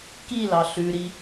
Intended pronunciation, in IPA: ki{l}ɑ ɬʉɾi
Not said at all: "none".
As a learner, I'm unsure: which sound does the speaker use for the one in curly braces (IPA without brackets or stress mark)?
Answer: l